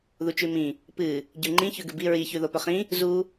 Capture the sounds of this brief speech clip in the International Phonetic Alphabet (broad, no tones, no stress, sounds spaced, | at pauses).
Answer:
ð u t͡ʃ ʉ m ĩ | p ɨ | ɟ ʉ ŋ͡ǃ ĩ ç ʉ ɡ ʉ b i ɹ i ç ʉ ð o p ɵ χ ĩ | z u